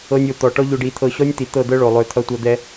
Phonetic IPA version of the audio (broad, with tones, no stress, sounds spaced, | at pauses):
ɤ˧ nʲ o˨ t̪ ɔ˨ ʈ ɔ˦ ʎ o˧ ɖ i˧ t̪ʰ ɤ˧ ɕ ɔ˦ nʲ t̪ i˨ t̪ ɤ˦˨ d̪ ɤ˦ ɭ o˨ lˠ ø˧ t̪ʰ ʌ˧ tʷ ʌ˧ d̪ ɛ˧